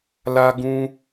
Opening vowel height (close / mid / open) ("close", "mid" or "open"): open